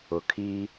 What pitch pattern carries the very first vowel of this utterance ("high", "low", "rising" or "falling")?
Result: low